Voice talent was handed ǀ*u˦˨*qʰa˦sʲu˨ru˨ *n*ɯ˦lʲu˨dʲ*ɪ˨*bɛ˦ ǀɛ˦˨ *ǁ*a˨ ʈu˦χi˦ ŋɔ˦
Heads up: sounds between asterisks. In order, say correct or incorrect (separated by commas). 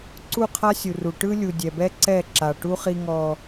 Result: correct, incorrect, incorrect, correct